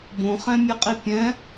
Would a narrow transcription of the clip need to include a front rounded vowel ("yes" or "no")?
no